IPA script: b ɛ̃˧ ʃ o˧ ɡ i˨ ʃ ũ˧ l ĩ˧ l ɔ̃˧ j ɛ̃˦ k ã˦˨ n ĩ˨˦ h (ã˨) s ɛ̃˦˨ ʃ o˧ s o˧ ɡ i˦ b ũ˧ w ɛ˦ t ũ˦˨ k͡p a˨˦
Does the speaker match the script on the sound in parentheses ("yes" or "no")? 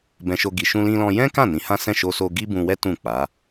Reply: no